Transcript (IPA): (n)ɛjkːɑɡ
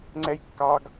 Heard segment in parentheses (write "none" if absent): ŋ͡ǀ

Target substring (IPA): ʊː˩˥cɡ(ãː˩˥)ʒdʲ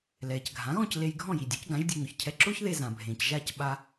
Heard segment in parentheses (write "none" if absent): ã˩˥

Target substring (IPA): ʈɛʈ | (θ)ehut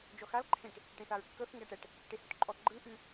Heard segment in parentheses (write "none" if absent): ʈ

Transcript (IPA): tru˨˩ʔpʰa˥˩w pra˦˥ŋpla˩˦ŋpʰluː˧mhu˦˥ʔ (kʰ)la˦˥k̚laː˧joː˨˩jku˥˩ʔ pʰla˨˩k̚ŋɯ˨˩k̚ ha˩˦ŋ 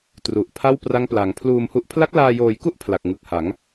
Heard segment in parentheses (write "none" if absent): pʰ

